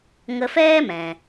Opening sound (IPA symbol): ŋ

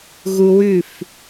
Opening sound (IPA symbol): ɣ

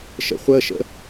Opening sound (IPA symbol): ʃ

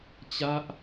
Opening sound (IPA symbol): t͡ɕ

